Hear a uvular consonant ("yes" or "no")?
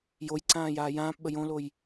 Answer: no